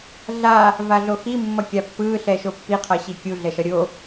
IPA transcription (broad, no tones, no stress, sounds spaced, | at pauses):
ɮ a | v a ɮ o x i mː ʌ kʲ a pː ɯː ɬ ɛ ʃ o pː i qʰ ʌ ɕ i kʲ u ɮ ɛ ʃ ʌ ɾʲ o